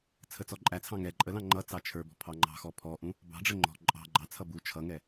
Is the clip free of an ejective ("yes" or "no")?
no